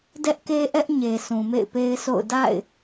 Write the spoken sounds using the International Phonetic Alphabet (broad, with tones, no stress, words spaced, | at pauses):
dɛ˦ʔke˦ʔɛ˦ʔ ɲe˨ sʰũ˨mḛ˦˨ɪ̯pe˦ɪ̯sʰo̰˦˨ʊ̯ da̰˦˨ɪ̯